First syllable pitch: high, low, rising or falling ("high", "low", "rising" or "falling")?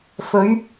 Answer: rising